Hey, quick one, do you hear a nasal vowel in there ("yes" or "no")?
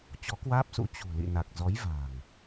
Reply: no